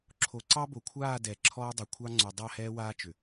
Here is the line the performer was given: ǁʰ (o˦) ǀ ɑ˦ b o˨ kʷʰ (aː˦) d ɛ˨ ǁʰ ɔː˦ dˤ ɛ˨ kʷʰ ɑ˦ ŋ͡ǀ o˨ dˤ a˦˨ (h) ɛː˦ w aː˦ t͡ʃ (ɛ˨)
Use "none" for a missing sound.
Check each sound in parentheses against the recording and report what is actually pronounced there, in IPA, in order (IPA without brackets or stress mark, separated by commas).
o˨, aː˦˨, h, ʏ˨